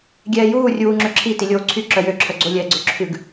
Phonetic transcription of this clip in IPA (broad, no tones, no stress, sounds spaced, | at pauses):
ɡʲ ɛː j uː rʲ uː ŋ͡ǁ ø ǁʰ i t i lʲ oː ǀʰ y ǁ œ j ø ǁʰ œ ɡ͡ǀ o lʲ ɛː ɡ͡ǀ ɵ ǁʰ ʉ ɡ